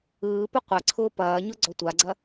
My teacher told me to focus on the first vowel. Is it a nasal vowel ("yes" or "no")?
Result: no